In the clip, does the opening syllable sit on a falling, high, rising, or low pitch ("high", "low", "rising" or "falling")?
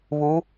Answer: rising